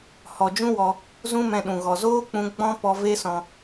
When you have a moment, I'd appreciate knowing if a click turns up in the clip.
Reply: no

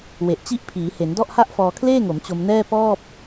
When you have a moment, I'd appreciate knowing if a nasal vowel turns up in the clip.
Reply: no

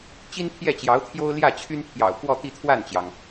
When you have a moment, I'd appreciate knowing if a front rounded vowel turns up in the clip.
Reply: yes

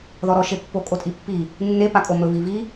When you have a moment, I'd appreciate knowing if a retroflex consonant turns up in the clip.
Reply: no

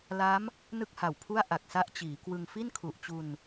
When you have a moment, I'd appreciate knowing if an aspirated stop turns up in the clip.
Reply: yes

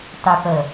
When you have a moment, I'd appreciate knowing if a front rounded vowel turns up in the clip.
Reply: yes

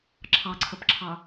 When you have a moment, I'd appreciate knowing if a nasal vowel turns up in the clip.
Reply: no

